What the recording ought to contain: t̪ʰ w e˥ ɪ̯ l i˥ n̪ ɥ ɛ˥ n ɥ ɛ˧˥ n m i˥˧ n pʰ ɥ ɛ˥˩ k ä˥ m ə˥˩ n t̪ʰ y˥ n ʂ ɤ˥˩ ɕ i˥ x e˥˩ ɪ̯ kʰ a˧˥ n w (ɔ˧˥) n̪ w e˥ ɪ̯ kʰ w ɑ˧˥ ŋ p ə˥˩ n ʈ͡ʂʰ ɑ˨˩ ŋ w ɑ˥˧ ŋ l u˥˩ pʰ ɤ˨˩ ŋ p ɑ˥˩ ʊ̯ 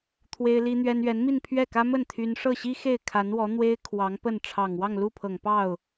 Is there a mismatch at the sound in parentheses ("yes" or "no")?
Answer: no